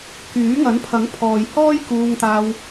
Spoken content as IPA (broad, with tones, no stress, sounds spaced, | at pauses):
k yː˨˥ ŋ ɐ˨˥ n pʰ ɐ˨˥ ŋ pʰ ɔː˨ j h ɔː˥ j k uː˧ ŋ t̪ aː˧ w